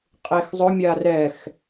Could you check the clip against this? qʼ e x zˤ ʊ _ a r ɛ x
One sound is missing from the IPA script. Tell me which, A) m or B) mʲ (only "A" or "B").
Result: B